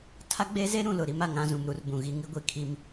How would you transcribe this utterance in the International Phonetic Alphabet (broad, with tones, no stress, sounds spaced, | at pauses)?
tʰ a˦ ɡ͡b e˦ z e˦ ɾ ũ˨ l ʊ˨ ɾ i˦ m a˨ ŋ ã˦ z ũ˨ m ɾ u˦ r b ũ˨ ɣ i˦ ŋ i˦ ɡʷ i˨ kʰ i˦ m